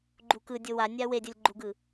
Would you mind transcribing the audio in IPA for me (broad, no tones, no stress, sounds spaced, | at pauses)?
ɡ͡ǃ u k ɯ dʲ o w a nʲ a w e dʲ ʌ lʲ ɡ͡ǃ u ɡ ɯ